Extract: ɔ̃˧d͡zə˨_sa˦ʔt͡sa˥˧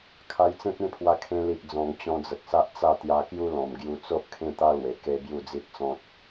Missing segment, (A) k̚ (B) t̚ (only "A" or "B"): A